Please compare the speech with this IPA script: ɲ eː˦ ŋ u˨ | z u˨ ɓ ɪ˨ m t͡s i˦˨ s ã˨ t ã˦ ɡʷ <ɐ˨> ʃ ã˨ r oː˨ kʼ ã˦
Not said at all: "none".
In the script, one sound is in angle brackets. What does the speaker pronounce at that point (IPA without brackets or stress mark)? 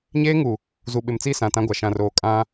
a˨